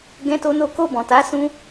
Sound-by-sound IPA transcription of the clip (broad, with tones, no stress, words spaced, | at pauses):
ɡɛ̃˦to˦no˦ ko˦˨bɔ̃˨ta˨˦ sũ˦